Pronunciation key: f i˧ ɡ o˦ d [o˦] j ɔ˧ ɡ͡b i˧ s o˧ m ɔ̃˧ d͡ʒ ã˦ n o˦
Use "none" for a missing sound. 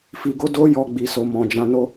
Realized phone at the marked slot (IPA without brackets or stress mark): o˦